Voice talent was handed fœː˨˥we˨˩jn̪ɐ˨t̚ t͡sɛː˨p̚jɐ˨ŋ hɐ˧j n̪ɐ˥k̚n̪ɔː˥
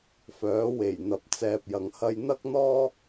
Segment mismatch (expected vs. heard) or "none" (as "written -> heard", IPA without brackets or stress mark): t̚ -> p̚